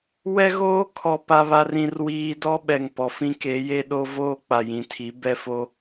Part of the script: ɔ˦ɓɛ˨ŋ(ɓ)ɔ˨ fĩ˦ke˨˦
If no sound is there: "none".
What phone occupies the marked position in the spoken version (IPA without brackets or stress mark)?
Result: p